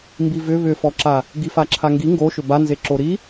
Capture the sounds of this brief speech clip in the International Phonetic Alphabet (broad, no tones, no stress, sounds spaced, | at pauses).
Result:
m b i v ʏ β ʏ f ɔ ǁ a | ɡ i f a ǁʰ a ŋ ɡ i ŋ ɡ o ʃ ʏ b a n z e ǁ o ɾ i